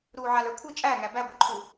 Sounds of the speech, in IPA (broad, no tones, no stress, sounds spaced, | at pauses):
ɾ uː ʕ a l ə˞ kʷʰ ɯ t͡ʃʼ æ ŋ æ b æ ɡʷ ɯ ǃʰ u